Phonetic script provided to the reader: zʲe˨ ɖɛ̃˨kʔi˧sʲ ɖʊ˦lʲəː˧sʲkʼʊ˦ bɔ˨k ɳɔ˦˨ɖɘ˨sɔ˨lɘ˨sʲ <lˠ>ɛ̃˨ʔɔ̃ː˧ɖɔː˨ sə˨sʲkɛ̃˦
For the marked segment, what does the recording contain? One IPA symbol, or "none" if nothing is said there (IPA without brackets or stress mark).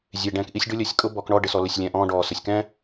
lʲ